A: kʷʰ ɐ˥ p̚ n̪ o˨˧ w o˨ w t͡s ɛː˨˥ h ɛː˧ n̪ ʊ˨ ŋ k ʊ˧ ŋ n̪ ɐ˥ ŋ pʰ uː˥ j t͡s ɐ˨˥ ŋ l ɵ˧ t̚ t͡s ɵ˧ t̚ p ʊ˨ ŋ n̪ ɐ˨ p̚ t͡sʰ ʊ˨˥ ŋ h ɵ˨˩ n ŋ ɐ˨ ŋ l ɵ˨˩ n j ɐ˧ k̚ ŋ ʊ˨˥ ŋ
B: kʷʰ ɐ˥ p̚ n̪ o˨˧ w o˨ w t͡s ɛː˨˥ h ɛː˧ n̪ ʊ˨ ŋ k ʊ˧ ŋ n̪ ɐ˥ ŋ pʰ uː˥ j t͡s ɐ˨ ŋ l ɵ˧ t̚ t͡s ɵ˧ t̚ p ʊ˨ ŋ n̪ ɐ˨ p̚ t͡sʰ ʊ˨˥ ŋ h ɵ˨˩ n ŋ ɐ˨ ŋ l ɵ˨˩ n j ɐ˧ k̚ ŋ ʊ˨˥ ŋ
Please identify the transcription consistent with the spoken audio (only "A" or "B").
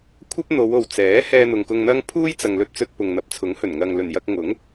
B